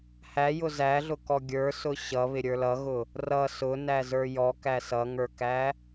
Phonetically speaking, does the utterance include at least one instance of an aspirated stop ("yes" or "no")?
no